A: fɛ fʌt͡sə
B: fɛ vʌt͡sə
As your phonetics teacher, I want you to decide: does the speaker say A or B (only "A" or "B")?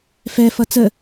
A